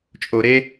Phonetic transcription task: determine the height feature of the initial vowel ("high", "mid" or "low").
mid